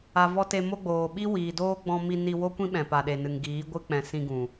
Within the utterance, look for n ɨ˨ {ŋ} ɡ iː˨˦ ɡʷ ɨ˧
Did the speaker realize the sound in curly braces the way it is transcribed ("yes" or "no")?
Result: yes